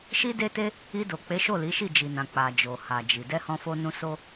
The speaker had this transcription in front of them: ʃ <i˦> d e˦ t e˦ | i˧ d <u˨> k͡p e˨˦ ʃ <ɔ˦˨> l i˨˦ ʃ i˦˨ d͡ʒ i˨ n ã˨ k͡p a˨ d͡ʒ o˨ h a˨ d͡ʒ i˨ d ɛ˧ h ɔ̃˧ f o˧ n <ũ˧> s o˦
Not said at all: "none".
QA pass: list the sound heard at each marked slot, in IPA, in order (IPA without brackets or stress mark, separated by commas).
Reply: i˦, o˨, o˦˨, ũ˧